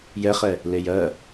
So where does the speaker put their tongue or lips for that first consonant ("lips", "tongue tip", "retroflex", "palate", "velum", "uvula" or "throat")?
palate